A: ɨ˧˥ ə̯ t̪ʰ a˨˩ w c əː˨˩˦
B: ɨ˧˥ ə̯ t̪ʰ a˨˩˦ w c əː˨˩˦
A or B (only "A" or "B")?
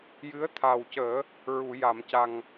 A